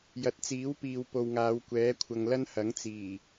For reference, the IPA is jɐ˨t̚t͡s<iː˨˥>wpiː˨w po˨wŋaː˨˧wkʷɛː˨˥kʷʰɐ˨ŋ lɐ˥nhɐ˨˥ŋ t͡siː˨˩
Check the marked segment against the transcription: correct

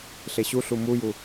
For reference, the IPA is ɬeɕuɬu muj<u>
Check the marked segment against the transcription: correct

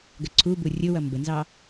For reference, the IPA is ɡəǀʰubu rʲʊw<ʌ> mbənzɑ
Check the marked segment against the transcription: correct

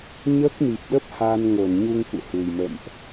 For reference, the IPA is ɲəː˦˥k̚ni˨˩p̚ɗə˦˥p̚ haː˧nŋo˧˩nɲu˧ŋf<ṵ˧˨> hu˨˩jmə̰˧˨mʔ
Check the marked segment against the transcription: correct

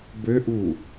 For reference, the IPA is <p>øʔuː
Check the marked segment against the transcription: incorrect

